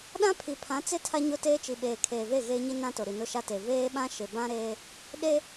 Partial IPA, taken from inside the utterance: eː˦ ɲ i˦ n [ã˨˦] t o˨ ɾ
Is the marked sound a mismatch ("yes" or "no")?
yes